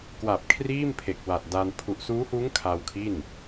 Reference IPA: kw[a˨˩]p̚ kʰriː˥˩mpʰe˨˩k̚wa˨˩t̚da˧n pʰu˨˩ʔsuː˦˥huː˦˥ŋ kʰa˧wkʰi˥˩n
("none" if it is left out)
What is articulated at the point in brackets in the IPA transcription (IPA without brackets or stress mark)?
a˨˩